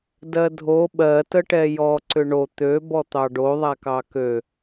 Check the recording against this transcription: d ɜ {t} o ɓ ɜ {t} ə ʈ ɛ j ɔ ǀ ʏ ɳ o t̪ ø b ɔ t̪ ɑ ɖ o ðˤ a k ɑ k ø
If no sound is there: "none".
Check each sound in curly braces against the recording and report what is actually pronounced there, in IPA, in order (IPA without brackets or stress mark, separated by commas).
dʱ, t